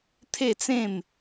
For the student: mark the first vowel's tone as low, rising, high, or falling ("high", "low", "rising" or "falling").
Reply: falling